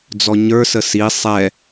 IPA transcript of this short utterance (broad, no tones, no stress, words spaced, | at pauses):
d͡zɔɲə˞sə si sˤɛ